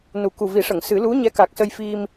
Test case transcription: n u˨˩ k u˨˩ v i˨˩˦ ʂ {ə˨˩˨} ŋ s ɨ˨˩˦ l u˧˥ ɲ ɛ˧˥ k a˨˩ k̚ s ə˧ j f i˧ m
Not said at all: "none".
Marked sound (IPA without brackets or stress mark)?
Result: ə˨˩˨